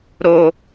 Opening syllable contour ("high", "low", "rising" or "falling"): low